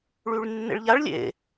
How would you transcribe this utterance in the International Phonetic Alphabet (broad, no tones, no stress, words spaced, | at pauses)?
ɭyɭnːḛɭʎaɭ lʲḛ